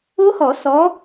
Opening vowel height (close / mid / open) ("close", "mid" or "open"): mid